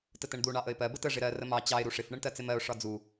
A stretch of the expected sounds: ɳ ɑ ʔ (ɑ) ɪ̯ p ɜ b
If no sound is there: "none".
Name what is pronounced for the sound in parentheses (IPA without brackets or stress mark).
ə